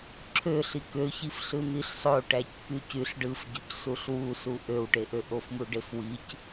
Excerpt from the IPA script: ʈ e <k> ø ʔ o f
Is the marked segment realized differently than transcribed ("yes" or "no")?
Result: yes